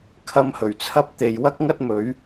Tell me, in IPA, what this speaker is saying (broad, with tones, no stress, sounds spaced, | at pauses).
kʰ ɐ˧ m h ɵ˨˩ ɥ t͡sʰ ɐ˥ p̚ t̪ e˨ j w ɐ˥ k̚ ŋ ɐ˥ t̚ m ɵ˨˥ ɥ